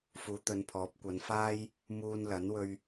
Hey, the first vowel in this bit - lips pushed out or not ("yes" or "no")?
yes